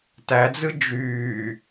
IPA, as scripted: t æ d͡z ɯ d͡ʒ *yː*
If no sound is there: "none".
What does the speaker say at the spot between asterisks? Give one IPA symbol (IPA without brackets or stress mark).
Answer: yː